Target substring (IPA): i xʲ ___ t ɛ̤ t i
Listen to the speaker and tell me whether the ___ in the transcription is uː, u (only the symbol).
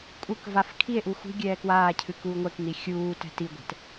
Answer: uː